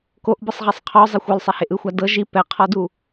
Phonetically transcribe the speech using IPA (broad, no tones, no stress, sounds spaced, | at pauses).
k o ʔ b ɯ sˤ ʁ i sˤ qʰ ɔ zˤ e xʷ ɔ l sˤ ɛ h e ʔ ɯ xʷ a d ɤ ʒ i p ɛ qʰ ɔ d u